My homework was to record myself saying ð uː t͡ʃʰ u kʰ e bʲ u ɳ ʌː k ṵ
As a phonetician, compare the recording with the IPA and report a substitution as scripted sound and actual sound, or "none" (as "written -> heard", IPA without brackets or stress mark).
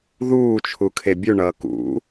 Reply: none